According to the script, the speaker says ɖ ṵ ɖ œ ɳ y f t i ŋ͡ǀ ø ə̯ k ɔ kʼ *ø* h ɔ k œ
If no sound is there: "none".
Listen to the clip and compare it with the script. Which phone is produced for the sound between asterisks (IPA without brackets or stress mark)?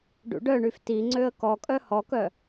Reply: œ